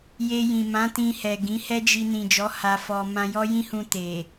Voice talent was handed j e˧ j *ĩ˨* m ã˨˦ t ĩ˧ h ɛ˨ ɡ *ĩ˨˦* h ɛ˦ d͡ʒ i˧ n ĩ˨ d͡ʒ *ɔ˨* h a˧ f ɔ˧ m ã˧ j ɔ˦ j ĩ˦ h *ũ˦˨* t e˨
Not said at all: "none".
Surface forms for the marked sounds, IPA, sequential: ĩ˨, ĩ˨˦, ɔ˨˦, ũ˧

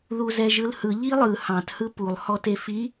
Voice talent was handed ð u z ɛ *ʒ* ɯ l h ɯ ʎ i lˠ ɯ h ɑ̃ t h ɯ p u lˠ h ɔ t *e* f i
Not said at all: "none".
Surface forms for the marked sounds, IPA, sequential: ʒ, e

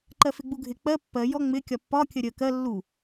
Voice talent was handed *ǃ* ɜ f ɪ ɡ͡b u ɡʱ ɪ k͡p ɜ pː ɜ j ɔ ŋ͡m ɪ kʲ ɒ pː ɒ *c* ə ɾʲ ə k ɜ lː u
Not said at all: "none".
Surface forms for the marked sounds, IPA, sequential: ǃ, kʲ

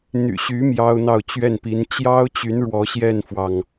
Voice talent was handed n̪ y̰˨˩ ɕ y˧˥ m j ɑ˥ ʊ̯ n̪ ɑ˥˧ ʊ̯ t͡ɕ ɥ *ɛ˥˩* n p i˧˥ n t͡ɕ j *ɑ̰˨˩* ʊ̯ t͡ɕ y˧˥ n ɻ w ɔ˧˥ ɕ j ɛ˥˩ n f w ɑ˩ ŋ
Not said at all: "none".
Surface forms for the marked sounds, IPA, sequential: ɛ˥˩, ɑ˥

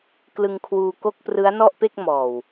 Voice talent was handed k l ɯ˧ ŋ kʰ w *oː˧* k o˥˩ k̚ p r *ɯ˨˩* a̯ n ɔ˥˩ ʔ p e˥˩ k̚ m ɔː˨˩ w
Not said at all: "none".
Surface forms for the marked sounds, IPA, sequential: uː˧, ɯ˦˥

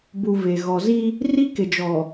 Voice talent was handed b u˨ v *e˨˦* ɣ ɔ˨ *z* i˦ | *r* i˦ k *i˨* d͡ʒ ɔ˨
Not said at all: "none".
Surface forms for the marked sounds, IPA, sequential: e˨, z, r, ɪ˨

